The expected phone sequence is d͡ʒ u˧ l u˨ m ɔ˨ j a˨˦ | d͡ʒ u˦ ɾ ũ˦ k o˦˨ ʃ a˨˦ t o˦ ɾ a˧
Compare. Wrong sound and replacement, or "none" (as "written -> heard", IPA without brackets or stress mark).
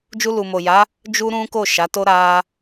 ɔ˨ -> o˨